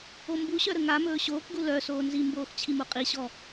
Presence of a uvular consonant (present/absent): present